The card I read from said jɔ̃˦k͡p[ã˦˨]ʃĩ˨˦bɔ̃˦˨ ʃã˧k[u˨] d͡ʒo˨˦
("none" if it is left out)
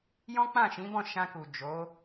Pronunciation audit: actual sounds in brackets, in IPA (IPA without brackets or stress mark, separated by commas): ã˦˨, u˨